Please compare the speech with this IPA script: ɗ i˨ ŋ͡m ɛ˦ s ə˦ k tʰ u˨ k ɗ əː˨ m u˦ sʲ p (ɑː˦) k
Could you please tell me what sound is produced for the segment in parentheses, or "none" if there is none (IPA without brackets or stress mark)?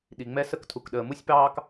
ɑː˦